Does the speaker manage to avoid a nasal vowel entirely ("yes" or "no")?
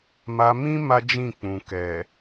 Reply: no